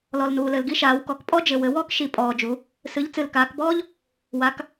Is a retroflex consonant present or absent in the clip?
absent